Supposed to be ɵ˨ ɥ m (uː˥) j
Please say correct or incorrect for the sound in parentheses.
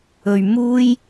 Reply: correct